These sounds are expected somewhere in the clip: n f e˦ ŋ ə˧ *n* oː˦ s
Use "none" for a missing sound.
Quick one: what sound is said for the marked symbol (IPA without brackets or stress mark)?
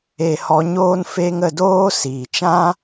d